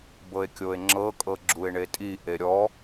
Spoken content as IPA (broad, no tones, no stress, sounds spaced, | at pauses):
b ɤ e̯ kʲ o e̯ ŋ͡ǁ ɤ kʼ ɤ ɡ͡ǁ u e̯ ɳ e tʼ i ʔ e ɾʲ ɔ